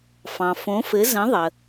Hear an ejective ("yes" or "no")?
no